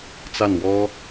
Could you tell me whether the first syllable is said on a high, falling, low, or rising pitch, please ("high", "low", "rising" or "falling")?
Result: falling